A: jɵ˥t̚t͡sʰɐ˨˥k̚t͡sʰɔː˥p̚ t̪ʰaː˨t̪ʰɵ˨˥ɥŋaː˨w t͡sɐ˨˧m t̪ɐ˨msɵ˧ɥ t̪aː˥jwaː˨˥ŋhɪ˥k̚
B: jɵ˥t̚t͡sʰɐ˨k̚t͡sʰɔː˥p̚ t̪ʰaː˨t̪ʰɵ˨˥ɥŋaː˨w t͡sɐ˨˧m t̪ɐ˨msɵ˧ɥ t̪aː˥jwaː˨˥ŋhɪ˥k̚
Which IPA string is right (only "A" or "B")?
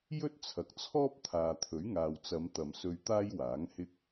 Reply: B